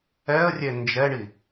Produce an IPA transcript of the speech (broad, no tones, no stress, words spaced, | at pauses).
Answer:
ɛə̯rʲe nd͡ʒɛɳi